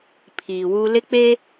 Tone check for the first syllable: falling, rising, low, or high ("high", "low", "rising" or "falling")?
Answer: low